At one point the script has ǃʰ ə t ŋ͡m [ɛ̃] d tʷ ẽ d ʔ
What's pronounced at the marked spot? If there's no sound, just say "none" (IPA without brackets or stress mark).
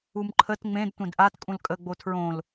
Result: ẽ